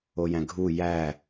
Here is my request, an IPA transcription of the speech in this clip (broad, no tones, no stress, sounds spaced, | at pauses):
o j æ̃ ɡʱ u j æ